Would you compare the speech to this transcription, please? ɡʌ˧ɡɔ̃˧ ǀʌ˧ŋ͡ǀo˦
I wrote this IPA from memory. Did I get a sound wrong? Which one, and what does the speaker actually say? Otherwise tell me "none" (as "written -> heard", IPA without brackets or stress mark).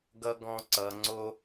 none